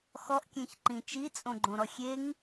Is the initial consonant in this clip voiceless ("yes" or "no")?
yes